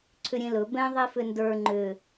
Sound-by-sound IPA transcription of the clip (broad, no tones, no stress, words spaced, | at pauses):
ǀʰʏɾʲẽlɵ bɛ̃ ðˤifʏndə˞ ŋ͡ǃʏ